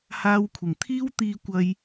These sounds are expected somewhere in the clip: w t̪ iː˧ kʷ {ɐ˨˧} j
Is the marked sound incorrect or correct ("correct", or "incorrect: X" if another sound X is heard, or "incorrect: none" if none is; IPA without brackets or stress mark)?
incorrect: ɐ˧